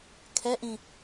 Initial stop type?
aspirated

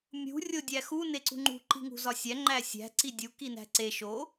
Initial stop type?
plain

